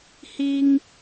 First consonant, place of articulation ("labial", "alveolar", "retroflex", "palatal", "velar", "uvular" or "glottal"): glottal